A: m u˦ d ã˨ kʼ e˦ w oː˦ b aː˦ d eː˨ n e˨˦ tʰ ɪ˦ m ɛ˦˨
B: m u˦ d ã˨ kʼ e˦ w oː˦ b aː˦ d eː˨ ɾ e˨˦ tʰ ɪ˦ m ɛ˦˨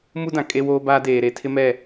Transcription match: B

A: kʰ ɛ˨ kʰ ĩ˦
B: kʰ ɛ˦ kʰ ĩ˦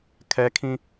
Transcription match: B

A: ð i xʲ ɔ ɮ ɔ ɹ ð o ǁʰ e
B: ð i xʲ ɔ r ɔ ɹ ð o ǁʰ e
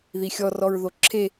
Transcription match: B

